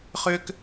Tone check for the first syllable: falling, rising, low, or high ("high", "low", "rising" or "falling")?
high